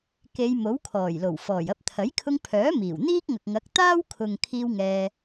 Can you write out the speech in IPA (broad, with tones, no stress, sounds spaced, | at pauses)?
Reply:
k e˨˧ j m o˨˥ w kʰ ɔː˨˩ j l o˨˩ w f ɔː˨˩ j ɐ˧ p̚ t̪ʰ ɐ˨˥ j kʰ ʊ˧ ŋ pʰ œː˨˥ m iː˨˩ w n̪ iː˥ k̚ ŋ ɐ˨ k̚ ŋ ɐ˨˥ k̚ t̪ aː˥ w kʰ ʊ˨ ŋ kʰ iː˥ w ŋ ɛː˧